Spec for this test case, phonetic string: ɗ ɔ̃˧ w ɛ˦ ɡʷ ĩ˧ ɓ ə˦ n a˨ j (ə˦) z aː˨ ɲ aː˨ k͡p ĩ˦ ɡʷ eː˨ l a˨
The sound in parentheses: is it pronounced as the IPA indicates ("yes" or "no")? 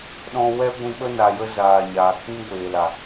yes